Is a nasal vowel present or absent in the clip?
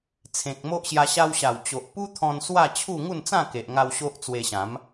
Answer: present